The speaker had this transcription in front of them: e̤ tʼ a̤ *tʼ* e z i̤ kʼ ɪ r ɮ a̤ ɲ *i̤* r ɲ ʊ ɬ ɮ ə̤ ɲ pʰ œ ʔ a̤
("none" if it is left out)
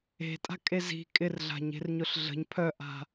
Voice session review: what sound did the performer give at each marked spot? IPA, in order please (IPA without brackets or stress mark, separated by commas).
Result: kʼ, e̤